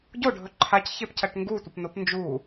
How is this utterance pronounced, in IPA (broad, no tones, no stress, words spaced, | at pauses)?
ɟoɖʱɵ ǃʰacçepcɐʈ ŋɡutʷɐpnop nd͡ʒu